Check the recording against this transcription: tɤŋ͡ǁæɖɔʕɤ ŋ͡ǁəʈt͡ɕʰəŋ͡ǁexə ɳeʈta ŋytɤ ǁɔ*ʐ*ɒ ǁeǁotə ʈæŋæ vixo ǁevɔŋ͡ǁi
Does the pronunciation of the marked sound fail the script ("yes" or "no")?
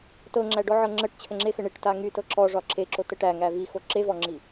no